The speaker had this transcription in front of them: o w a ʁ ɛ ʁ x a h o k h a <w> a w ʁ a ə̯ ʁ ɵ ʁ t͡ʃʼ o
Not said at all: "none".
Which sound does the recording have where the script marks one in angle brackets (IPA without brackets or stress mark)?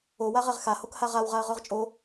ʁ